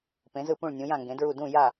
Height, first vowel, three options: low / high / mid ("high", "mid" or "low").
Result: mid